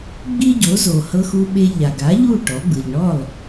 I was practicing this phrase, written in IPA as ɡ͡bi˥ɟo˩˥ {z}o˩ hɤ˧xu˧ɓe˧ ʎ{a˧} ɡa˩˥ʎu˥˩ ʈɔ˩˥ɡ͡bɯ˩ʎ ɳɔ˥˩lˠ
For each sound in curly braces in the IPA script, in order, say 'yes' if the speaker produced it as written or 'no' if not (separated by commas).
yes, no